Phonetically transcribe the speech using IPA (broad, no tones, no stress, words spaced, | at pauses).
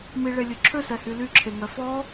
miɭe lʲɵǁʰøsɛhy lyǁʰeŋœ fɔ